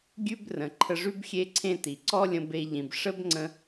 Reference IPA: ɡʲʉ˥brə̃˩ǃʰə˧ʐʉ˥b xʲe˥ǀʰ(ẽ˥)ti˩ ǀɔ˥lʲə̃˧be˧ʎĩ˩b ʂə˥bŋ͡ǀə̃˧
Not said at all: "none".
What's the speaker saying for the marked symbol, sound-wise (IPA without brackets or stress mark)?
ẽ˥